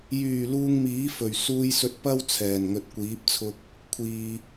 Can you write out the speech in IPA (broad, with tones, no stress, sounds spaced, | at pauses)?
j yː˨˩ l uː˧ ŋ m iː˨˥ f ɵ˨˩ ɥ s uː˧ j s ɵ˧ t̚ p ɐ˥ w t͡sʰ ɛː˨˩ n ŋ ɵ˨ t̚ kʷ iː˨˥ p̚ t͡sʰ ʊ˧ k̚ | kʷʰ iː˨